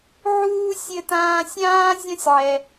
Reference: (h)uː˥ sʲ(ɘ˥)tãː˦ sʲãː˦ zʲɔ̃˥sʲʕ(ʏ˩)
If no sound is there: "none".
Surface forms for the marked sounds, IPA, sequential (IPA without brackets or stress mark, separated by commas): ʕ, ɘ˦, ɛ˩